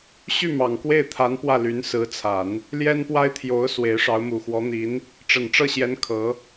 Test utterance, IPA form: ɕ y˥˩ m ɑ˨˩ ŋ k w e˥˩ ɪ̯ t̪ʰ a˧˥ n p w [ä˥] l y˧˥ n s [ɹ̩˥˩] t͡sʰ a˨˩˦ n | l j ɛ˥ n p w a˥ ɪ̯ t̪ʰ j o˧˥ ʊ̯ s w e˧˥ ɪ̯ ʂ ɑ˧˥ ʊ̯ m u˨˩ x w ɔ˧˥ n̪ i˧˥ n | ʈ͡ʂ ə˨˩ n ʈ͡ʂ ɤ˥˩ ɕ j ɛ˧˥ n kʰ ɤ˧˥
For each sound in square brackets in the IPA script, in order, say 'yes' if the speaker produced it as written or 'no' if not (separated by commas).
no, no